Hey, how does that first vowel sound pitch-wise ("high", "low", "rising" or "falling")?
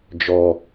low